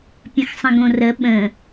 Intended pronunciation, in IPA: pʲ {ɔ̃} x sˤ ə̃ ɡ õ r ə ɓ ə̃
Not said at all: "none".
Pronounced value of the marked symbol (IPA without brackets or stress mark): ə̃